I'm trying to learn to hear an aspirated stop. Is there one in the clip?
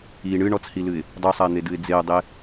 no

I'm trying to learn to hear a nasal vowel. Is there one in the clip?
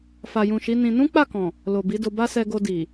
yes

